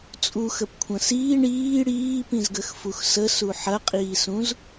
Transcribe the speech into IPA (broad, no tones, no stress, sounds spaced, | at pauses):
t͡sʼ u x ə p kʷʰ ɐ̃ s iː ɳ iː ɽ iː p ĩ z ɡ ə x f u x s ə s u ħ ɐ qʼ iː s ũ z